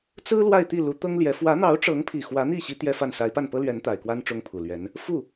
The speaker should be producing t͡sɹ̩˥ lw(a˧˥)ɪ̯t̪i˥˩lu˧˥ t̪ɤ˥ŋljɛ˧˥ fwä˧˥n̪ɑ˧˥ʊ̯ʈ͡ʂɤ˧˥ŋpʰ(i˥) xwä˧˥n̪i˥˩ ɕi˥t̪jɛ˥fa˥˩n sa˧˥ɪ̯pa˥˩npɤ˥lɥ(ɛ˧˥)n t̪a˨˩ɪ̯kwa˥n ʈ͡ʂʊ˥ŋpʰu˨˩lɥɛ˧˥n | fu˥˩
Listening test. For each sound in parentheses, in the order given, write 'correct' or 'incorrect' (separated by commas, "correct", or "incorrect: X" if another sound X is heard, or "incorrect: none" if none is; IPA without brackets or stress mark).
incorrect: a˥˧, incorrect: i˨˩, correct